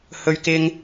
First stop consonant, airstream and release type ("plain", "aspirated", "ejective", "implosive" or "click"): plain